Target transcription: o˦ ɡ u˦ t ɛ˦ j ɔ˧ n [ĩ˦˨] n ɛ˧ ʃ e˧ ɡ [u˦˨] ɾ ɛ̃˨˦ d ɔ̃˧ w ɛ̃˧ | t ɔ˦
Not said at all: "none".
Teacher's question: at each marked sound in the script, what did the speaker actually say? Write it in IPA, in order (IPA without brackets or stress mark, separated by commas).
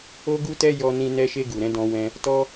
ĩ˧, u˨